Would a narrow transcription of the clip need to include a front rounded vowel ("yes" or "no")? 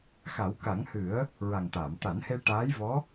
no